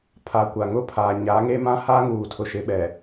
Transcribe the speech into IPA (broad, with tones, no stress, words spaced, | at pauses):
pʰa˨kʷa˨ŋʊ˦ pʰa˨ɲa˨˦ŋe˦ mã˦ha˦ ŋuː˨tʰʊ˨ ʃɪ˨˦ɓɛ˨